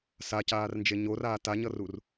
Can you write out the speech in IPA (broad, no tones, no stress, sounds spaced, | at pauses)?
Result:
s a c aː r n d͡ʒ e ɲ o r aː t a ɲ ʌ r u r